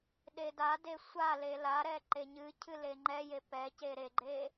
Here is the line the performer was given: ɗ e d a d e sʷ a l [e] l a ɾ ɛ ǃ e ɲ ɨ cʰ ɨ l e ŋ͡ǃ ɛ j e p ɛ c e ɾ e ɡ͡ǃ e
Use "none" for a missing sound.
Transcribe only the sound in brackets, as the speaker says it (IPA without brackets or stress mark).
e